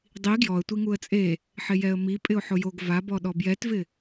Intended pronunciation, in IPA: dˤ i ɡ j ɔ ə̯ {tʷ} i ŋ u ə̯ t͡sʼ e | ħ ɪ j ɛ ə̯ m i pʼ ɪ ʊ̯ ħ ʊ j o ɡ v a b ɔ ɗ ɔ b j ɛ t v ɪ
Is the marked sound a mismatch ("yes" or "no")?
no